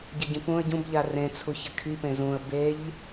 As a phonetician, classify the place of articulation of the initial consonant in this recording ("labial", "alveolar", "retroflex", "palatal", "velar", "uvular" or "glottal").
palatal